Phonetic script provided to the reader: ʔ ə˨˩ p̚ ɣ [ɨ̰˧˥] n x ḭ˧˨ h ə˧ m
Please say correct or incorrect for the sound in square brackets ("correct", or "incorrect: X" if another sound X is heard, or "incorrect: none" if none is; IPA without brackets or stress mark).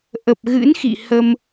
correct